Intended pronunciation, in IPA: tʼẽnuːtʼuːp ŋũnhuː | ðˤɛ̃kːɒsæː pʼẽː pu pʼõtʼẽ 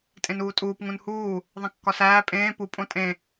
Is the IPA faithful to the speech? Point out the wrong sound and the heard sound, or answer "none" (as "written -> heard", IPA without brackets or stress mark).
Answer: ɛ̃ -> ẽ